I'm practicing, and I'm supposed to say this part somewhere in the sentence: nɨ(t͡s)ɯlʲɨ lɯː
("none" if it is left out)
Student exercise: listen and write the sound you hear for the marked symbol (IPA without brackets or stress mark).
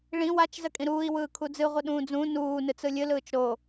t͡s